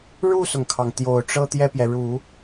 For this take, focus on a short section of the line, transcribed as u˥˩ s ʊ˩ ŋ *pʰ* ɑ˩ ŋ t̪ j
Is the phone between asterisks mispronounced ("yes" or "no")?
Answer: yes